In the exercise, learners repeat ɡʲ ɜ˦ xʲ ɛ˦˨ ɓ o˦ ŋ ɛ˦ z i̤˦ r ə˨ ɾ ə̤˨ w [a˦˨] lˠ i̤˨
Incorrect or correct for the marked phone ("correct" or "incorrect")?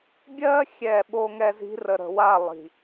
correct